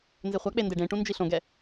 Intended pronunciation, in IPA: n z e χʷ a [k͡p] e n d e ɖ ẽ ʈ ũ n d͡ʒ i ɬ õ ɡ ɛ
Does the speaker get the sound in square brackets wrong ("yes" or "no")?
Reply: no